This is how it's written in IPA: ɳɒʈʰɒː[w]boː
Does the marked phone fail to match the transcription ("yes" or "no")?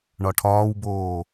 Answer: no